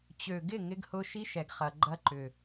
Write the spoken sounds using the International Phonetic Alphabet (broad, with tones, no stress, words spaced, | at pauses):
t͡ɕø˨ɡɪ˦˨ ŋɪ˦ɡhʊ˦ ʃi˦ʃɛ˨ɡχɐ˨ ɡ͡ǃɐ˦ǃʏ˨